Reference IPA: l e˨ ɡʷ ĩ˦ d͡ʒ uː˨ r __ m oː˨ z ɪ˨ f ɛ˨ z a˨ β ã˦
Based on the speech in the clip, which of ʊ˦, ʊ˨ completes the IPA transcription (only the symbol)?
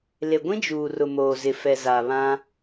ʊ˨